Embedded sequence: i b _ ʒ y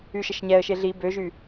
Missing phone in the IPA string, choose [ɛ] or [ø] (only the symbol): ø